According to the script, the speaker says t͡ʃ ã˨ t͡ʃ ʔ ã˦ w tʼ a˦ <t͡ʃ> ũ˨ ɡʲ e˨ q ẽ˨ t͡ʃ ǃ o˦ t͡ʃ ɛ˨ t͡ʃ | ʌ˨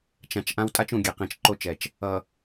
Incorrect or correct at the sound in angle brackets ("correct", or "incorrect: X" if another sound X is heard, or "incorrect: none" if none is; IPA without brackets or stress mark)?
correct